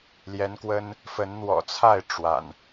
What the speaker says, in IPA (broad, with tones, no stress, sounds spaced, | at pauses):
l j ɛ˨˦ n k w ə˦ n | f ə˨˦ n n̪ w ɔ̰˨˩ t͡sʰ a˥˨ ɪ̯ ʈ͡ʂ w a̰˨˩ n